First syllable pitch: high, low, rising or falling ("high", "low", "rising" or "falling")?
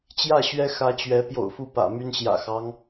falling